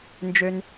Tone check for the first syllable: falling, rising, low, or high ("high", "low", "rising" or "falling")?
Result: low